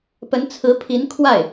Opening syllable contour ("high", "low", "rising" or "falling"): rising